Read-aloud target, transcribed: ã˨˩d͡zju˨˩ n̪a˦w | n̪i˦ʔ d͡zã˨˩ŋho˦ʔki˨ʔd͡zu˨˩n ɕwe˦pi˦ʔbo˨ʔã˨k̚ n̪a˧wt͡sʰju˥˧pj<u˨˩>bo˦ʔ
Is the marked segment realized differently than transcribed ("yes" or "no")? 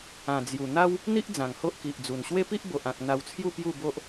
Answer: yes